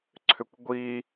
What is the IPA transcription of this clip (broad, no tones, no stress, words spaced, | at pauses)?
ǀʰʏkʷɡʷi